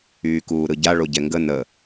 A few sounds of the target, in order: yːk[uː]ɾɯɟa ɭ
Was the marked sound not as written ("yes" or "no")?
no